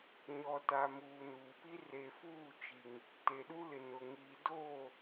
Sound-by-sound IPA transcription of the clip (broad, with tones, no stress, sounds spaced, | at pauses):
ɲ ɔ˨ t a˨ m uː˨ n uː˨ p i˦ r e˨ f uː˦˨ t͡ʃ i˨ ŋ | t e˨ ɗ u˦ l ɪ˨ n ʊ˨ ŋ iː˨ d oː˦˨